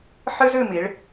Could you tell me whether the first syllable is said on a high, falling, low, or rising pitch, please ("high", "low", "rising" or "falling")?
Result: high